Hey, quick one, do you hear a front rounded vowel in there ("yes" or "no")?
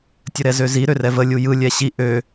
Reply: yes